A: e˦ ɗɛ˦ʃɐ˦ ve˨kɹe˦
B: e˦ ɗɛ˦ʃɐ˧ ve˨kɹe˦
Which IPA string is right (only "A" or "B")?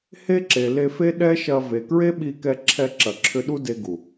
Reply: B